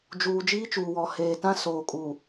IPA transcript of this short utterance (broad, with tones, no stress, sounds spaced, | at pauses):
d͡ʒ uː˨ d͡ʒ iː˦ t͡ʃ uː˨ w ɔ˨ h eː˨ t ã˦ s oː˨ kʼ u˨